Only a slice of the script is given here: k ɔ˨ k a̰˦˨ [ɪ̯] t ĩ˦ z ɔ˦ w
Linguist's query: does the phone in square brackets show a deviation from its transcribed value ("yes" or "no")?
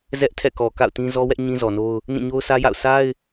yes